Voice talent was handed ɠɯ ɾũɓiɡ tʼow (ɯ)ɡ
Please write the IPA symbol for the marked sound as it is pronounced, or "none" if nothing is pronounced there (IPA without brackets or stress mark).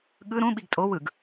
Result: ɯ